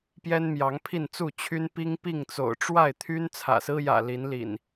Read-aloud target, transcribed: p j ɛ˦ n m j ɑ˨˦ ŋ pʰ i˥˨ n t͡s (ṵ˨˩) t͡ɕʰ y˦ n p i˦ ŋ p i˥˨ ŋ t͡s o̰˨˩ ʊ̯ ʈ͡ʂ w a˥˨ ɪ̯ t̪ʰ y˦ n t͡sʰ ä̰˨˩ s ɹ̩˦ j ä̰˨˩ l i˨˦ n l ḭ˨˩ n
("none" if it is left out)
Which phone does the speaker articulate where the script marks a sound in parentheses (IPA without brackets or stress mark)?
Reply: u˥˨